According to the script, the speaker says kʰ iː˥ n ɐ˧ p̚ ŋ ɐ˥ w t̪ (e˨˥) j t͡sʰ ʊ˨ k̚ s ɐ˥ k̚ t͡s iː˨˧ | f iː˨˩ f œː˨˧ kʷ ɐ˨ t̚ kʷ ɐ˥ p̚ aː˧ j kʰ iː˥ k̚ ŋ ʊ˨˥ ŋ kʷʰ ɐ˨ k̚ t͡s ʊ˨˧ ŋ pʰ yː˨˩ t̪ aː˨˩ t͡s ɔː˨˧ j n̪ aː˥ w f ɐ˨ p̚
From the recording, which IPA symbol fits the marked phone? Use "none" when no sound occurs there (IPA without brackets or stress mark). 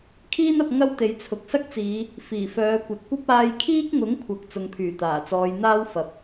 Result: e˨˧